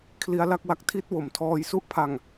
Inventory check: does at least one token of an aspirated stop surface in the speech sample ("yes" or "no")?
yes